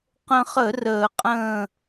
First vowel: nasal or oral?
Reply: nasal